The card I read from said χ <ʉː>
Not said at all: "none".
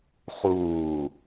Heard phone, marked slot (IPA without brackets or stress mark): uː